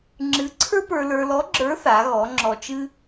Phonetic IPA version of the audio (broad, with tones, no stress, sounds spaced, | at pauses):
ŋ͡ǁ ɨ˧˥ ǀʰ ə˞˥ p ə˞˧ l ə˞˧ l ɔ˧˥ ɡ͡ǁ ə˞˧˥ θ a˩˧ ɣ ɔ˩˧ ŋ͡ǁ ɔ˧ t͡ʃ ɨ˥